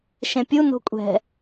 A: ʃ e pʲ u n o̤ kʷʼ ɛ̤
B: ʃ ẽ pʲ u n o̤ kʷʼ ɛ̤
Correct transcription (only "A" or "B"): B